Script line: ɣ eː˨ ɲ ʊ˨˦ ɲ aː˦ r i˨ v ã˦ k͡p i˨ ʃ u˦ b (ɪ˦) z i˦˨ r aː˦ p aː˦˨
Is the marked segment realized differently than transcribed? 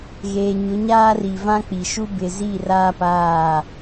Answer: yes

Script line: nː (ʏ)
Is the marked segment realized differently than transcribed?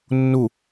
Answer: yes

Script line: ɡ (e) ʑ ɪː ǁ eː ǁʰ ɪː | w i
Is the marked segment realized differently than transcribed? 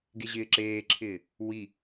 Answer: no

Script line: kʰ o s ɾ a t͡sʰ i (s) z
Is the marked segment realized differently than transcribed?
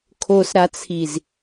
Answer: yes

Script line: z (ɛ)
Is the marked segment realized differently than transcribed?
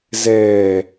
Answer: yes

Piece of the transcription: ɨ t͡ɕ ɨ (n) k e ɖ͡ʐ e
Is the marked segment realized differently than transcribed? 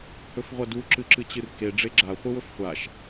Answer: yes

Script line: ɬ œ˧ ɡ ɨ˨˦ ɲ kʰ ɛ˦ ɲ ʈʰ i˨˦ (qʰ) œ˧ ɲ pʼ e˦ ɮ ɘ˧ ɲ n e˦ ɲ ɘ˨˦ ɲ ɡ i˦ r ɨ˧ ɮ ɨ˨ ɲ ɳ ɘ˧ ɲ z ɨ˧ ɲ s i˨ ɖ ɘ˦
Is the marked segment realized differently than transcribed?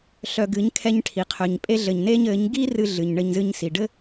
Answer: no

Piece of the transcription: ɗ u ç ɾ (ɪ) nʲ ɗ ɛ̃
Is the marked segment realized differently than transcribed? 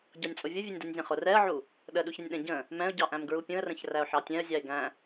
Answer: no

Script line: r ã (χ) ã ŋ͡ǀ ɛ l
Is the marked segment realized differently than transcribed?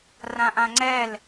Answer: yes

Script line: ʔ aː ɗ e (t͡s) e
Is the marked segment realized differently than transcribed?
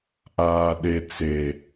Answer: no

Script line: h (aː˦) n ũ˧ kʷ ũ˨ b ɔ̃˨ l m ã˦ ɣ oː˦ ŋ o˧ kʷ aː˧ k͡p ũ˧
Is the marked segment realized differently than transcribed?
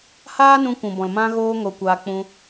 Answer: no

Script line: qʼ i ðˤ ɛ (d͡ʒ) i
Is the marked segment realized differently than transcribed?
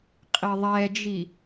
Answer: no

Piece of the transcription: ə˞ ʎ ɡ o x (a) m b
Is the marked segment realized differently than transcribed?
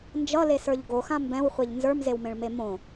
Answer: yes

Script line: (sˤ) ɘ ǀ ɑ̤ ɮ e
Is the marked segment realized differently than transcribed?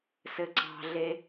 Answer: yes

